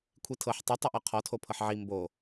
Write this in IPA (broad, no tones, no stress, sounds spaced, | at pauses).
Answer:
kʷʰ i tʰ ɤ ħ tˤ ʊ tˤ i ʔ ɔ qʰ ɔ tʰ o pʰ ɤ ħ ʕ i m b o